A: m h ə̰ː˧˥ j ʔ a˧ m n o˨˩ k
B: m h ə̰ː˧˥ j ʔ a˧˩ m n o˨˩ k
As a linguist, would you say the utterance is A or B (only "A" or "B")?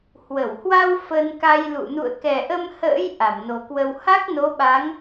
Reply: B